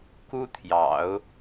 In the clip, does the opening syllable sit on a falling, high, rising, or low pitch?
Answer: high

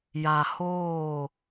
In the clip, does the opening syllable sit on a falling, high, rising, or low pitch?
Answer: low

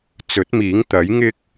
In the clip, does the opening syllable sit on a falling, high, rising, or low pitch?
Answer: rising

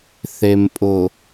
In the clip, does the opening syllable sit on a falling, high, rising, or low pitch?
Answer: low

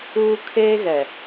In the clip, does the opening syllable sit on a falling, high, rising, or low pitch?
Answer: high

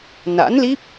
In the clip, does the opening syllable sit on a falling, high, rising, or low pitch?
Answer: rising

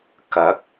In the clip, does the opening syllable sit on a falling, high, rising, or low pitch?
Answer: rising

